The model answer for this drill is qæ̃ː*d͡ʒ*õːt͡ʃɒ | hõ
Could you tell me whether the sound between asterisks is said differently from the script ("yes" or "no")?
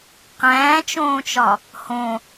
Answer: yes